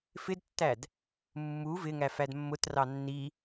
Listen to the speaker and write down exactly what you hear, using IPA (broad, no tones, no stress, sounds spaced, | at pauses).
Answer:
f ɪ d tː æ d | mː u v ɪ ŋ æ f æ d mː ʊ t r ɑ nː i